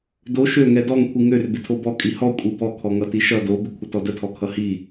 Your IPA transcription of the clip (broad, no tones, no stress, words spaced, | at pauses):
do ʃøŋɛ dɔŋkʷʰi ŋør bɪtʰobɔ kʼihɔ kʷʼibɔkʰɔŋʌ tiʃʌ dobɪ kʷʰətɔdətʰɔ kʰʌhi